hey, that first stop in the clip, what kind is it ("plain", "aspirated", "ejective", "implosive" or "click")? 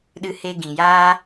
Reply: implosive